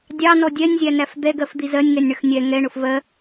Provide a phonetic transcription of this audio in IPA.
dʲɑnɔ dʲɛnʲzʲænæf d̪ɛɡɜfd̪i zɜnʲŋɛnʲɳəx nʲɛ ŋɛɳʊf vɜ

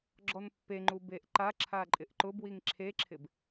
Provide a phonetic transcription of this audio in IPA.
ɡ͡ǁɔnpːeŋ͡ǃu beʔǃaǁʰa ǃʼɪʔǃʊbwiŋ ǁʰeǁʰɪb

